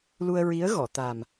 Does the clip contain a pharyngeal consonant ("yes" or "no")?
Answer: no